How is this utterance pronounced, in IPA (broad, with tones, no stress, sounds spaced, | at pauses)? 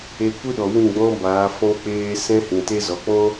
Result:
e˧ kʷ ɨ˦ ɗ ɔ˨ w ĩ˦˨ ɡ͡b ɔ̃˧ b aː˨˦ f ɔ̃˦ k͡p eː˧ s ɛ̃˦ h ĩ˨ t e˦ z ɔ˨ k͡p ɔ̃˦